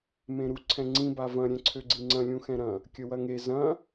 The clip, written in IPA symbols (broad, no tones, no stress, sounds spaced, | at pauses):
m ẽ ɾ u ǀʰ ɛ̃ ŋ͡ǀ ĩ b a v ɐ̃ ɾʲ ɛ̃ ǀʰ ø ɡ͡ǀ i ŋ͡ǀ ɐ̃ lʲ ũ x ɛ̃ ɾ ɐ̃ | kʲ ə w ɐ ŋ e z ɐ̃